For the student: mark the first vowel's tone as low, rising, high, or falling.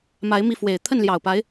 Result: rising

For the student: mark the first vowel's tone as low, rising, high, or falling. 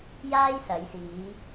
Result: high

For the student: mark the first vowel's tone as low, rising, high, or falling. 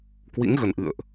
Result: rising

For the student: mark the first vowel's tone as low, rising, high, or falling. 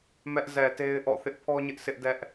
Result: high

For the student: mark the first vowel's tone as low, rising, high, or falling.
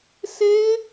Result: high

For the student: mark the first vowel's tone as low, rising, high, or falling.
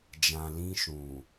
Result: low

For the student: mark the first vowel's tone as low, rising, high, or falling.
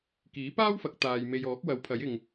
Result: rising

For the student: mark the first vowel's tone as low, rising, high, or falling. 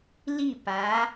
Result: falling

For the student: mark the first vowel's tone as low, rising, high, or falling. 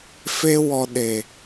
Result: high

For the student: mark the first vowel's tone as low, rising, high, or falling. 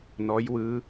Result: rising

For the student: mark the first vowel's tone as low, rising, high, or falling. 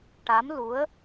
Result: rising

